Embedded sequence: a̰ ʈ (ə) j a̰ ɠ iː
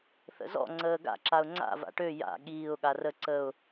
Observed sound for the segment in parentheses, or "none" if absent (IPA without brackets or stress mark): ø